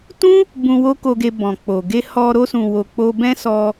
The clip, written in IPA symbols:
t ũ˦ | b ũ˧ w o˦ k o˧ ɡ e˧ b ɔ̃˨ k͡p o˨ ɡ e˧ h ɔ˧ ɾ o˧ s ũ˨ w o˨ k͡p o˧ b ɛ̃˦ s ɔ˧

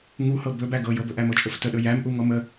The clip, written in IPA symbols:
ŋ u h ɤ b ɵ b æ ɡ ɤ j ɤ b ɵ ʔ æ m ɤ t͡ʃʼ ɵ f t ə ɗ ɵ j æ m ʔ u ŋ ɔ m ə

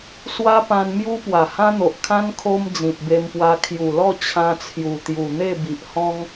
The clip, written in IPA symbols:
s w a˦ p ã˧ n m j u˦ p w a˨˩ h ã˦ n̪ o˨ ʔ kʰ ã˦ n kʰ o˦ m d͡z ĩ˨ p̚ b e˧ m p w a˧ kʰ j u˨˩ l ɔ˥˧ t͡ɕʰ ã˧ t͡sʰ j u˨˩ t̪ j u˨˩ n̪ e˥˧ b i˨ ʔ h ɔ̃˦ ŋ

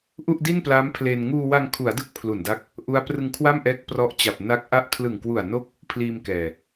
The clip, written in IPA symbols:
ʔ u˥˩ ʔ d i˥˩ n p l a˦˥ m pʰ l e˧ n ŋ uː˧ w a˧ ŋ kʰ u˩˦ a̯ d ɯ˦˥ k̚ pʰ l u˨˩ n d a˦˥ k̚ | ʔ u˦˥ a̯ p r ɯ˧ ŋ kʰ w a˥˩ m ʔ ɛː˦˥ k̚ p r ɔ˦˥ ʔ t͡ɕ a˨˩ p̚ n a˦˥ k̚ ʔ a˥˩ ʔ kʰ l ɯ˨˩ ŋ k w u˨˩ a̯ n o˥˩ k̚ | pʰ l iː˧ m k ɛː˨˩

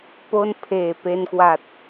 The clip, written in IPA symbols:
p o˥˩ n pʰ eː˨˩ p e˧ n k w a˨˩ t̚

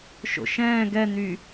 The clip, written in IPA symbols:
ʃ o̰ ʃ ɛ̃ː ɡ ɛ n̪ y

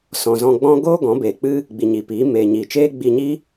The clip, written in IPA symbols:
s ɔ̃˨ z ɔ̃˧ ɡ͡b ɔ̃˦ ɡ oː˦ ɡ ɔ̃˨˦ b eː˨ k͡p ɨ˦ | ɡ͡b i˨ ɲ i˨ p iː˨˦ m eː˨ ɲ iː˨ t͡ʃ eː˦ ɡ͡b i˧ ɲ i˦

